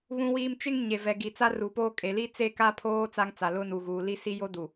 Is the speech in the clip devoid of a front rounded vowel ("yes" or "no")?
yes